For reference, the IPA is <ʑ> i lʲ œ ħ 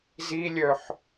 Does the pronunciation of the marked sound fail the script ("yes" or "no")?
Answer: yes